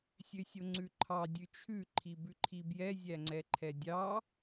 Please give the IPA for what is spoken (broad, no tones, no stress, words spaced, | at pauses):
sʲøsʲoŋ͡ǀʉǃʰɑ dʲʉt͡ʃʰʉ ǃʰibʉǃʰibjɛ zʲæŋ͡ǀɛǃʰɛdʲɑ